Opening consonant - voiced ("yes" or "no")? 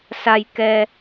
no